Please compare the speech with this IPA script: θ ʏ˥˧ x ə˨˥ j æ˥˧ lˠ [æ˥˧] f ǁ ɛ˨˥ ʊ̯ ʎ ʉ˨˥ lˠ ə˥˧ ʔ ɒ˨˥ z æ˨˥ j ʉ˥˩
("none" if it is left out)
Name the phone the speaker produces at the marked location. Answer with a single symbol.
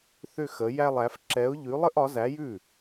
æ˨˥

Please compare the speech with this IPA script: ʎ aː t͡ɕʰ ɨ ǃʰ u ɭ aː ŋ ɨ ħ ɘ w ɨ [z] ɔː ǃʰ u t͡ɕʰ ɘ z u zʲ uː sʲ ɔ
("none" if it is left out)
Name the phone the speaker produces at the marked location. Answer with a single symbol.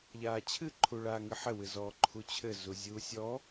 z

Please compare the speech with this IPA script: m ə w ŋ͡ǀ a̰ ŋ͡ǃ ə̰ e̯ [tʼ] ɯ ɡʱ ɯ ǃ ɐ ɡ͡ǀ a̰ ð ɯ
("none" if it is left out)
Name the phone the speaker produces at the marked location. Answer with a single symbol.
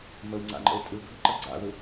tʼ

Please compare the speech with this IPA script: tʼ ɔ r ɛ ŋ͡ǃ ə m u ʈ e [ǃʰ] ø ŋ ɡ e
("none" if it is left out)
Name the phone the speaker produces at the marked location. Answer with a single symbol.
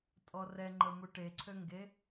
ǀʰ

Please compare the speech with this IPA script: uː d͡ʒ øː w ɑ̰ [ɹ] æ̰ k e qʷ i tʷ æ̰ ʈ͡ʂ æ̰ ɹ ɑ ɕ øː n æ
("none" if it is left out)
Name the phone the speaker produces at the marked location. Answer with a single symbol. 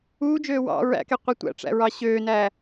ɹ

